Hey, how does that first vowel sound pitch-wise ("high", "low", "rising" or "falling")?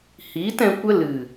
rising